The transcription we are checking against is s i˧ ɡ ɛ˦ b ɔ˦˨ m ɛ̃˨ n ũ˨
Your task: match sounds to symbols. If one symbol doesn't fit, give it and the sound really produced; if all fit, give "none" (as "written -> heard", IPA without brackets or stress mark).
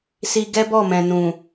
none